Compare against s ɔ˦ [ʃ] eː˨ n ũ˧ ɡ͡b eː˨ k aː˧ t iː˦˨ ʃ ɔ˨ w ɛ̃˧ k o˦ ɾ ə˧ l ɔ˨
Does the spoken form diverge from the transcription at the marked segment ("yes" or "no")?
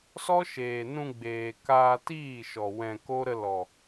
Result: no